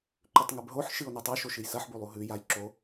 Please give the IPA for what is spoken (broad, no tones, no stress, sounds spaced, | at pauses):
ǃ ʉ tˤ ŋ ɨ b ɦ o ħ ʃ ɨ o̯ n ɨ tˤ o ʃ o ʃ ɨ j s ɐ ħ b u lˠ u ɦ ʉ j a j ǁ o